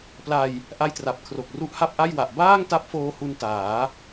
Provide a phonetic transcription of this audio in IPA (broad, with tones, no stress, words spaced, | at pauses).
pla˧j | ʔa˧jtra˨˩p̚kʰro˨˩k̚ ru˦˥ʔha˥˩p̚ʔa˥˩jwa˨˩ʔ baː˥˩ŋta˦˥p̚foː˧ hu˧ntaː˩˦